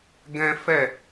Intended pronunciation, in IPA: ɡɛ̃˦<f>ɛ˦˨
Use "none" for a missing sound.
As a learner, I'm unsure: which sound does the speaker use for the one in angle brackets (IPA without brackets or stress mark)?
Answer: f